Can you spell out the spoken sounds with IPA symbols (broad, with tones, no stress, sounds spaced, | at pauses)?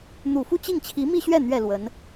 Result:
n̪ u˨˩ f u˥˧ t͡ɕ i˥˩ ŋ t͡ɕʰ i˧˥ m i˥˧ ɕ ɥ ɛ˥˩ n̪ ɥ ɛ˨˩ l w ə˧˥ n